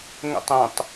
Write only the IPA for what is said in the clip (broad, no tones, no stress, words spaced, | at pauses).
ŋə̰tˤə̃tˤ